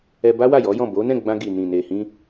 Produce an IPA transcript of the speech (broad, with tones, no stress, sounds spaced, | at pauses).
ɛ˧ b a˦ w a˦˨ j ɔ˨˦ j ɔ̃˦˨ b o˨˦ n ɛ̃˦˨ ɡ͡b ã˧ ɡ i˨ n ĩ˨ n e˨ h ĩ˧